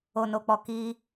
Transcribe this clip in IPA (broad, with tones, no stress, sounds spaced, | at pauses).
o˨ n o˨ k͡p ɔ˨ k i˧